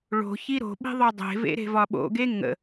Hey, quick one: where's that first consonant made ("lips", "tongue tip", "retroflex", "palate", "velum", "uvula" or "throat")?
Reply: retroflex